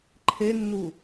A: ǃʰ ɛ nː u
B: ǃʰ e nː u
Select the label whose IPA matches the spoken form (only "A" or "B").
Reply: B